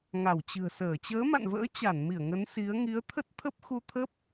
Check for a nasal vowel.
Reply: absent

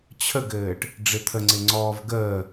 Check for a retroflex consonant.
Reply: present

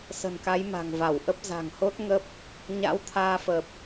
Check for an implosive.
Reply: absent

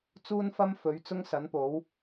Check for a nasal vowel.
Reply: absent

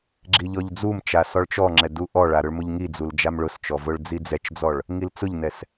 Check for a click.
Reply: present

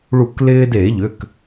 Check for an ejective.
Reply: absent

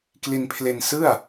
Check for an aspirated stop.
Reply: present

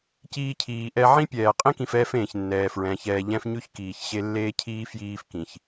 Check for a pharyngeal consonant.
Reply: present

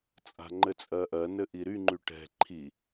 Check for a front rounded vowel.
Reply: present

